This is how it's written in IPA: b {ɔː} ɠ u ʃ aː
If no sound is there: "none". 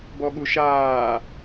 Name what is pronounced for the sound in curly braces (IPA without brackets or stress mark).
ɔ